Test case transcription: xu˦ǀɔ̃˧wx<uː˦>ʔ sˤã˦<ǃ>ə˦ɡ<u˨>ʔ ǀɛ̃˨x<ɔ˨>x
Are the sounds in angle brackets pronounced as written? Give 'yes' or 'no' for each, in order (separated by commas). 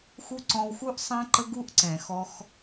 no, yes, no, no